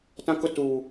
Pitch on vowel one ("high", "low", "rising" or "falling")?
high